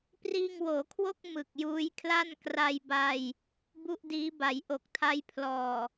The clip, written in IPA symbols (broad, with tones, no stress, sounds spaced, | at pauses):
p r iː˧ ŋ w oː˩˦ kʰ w o˥˩ k̚ m ɯ˨˩ k̚ j uː˦˥ j kʰ l a˥˩ n k r a˧ j b a˧ j | b u˥˩ ʔ d iː˦˥ b a˩˦ j ʔ o˨˩ k̚ tʰ a˦˥ j pʰ l ɔː˨˩